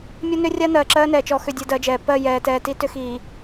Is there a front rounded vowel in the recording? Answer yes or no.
yes